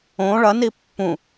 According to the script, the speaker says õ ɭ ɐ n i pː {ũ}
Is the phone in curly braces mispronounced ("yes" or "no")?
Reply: no